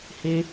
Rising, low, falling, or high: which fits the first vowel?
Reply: high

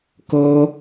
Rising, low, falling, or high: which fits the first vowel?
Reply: high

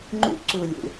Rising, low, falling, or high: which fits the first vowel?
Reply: high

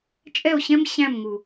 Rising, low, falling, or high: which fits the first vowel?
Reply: falling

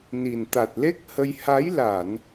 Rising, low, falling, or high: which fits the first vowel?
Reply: low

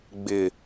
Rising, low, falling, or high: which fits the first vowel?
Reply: low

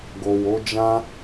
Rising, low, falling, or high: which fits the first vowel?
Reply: low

